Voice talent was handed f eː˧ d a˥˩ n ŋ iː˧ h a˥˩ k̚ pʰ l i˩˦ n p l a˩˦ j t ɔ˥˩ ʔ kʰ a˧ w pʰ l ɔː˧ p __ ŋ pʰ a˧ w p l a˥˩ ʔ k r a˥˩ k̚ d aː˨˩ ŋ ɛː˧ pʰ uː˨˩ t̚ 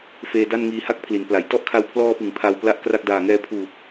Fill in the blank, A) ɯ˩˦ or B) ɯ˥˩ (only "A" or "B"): A